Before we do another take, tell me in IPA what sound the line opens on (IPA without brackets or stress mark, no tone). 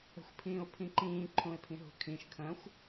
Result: ə̤